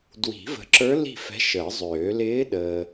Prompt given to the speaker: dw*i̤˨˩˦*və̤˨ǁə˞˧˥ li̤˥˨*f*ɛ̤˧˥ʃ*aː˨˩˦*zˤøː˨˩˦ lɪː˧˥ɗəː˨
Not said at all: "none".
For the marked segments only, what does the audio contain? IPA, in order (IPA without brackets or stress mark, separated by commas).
i̤˨˩˦, f, əː˨˩˦